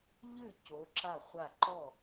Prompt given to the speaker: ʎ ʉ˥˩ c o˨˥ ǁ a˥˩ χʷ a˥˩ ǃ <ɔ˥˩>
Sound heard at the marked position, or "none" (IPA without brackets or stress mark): ɔ˥˩